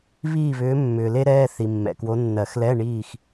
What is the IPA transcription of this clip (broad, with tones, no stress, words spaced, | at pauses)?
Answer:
βiː˥˨βʏː˧˥ mːʏː˨le˥ ɾɛː˧˥˧ θi˨mːɛ̰˨kwo˧˥ nːɜ˨˩˦xlɛ˧˥˧ ɳiː˥˨x